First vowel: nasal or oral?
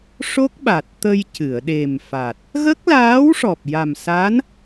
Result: oral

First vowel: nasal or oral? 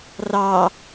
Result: oral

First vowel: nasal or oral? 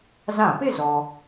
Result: nasal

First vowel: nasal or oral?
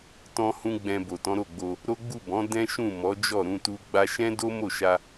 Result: nasal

